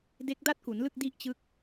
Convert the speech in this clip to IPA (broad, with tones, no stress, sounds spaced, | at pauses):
d e˦˥ k̚ d a˥˩ t̚ k u˩˦ n l ɯ˥˩ k̚ d i˥˩ ʔ t͡ɕ ɯ˦˥ k̚